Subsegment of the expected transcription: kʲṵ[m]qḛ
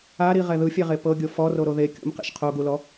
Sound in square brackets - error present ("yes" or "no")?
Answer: no